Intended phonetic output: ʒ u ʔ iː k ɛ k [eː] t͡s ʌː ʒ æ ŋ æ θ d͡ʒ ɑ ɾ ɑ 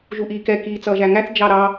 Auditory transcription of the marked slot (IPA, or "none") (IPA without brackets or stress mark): iː